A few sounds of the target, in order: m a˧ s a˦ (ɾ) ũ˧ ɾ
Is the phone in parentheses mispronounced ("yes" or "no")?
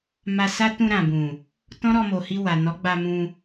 yes